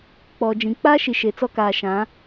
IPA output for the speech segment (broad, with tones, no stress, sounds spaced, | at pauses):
k͡p ɔ˨ d͡ʒ ĩ˨ k͡p a˦ ʃ i˨ ʃ e˨ t͡s ɔ˦ k aː˨ ʃ ã˨˦